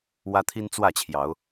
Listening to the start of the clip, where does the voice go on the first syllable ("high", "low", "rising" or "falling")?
high